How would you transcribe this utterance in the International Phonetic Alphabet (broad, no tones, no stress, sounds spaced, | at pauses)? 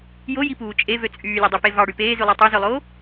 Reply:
j o j i p uː t͡ʃʼ e v ø t͡sʼ yː lʲ ɑ dˤ ø p e v ɑ ɽ y p eː z y lˠ æ tˤ ø z ø lˠ oː